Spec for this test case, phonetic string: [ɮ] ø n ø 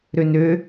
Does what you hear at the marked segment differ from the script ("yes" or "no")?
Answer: yes